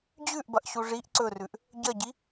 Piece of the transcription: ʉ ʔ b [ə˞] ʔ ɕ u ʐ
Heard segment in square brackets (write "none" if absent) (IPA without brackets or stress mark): ɐ